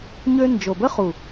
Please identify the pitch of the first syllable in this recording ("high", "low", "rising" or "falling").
high